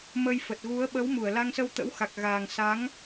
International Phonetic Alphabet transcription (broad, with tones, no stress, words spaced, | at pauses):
mə˧jfə˨˩t̚ɣu˨˦ə̯ ɓə˨˦wmu˧˩ə̯ la˧ŋsə˧wt̪ə̰˧˥wxa˨˩k̚ ɣaː˨˩ŋ sa˨˦ŋ